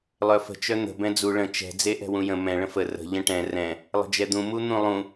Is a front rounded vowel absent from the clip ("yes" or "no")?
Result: no